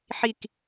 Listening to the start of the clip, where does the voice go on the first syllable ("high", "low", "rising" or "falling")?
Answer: falling